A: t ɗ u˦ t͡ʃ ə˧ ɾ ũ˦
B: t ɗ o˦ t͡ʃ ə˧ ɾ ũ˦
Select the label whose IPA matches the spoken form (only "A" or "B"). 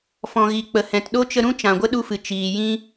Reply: B